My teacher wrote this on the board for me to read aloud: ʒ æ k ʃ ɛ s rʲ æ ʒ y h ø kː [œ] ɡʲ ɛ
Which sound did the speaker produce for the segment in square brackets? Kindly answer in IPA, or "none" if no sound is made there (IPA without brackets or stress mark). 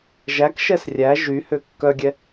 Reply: œ